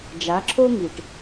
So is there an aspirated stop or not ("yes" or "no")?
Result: yes